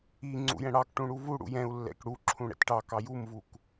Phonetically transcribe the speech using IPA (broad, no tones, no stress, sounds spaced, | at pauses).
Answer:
i ŋ͡ǀ ṵ j ɛ̃ ɽ ɑ k ʈ ũ ɽ u v u ɽ ṵ j ɛ̃ u̯ lː ɛ̰ k ɽ u ǁʰ ũ ɽ ɛ̰ t ʈ ɑ k ɑ j u m v u k